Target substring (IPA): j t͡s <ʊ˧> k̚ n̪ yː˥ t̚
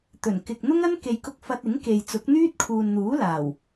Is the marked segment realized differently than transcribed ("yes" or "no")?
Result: yes